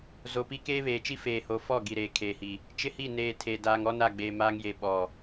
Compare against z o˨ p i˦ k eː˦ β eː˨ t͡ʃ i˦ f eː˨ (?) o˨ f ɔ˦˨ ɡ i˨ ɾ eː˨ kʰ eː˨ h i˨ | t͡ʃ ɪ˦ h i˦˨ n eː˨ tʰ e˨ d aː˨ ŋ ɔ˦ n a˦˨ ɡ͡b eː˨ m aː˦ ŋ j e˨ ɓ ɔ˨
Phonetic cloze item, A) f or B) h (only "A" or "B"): B